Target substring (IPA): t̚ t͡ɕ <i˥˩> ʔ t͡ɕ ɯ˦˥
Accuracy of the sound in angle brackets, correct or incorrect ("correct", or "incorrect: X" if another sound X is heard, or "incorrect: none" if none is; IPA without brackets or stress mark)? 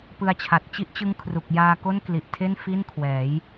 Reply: incorrect: i˦˥